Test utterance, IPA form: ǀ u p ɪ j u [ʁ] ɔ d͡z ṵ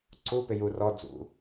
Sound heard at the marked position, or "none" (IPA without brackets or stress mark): r